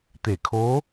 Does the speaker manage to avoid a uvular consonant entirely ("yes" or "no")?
yes